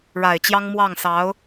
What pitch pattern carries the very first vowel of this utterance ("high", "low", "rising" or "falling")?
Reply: low